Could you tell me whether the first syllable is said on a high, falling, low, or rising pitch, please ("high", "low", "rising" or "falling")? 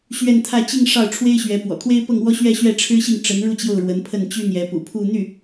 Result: falling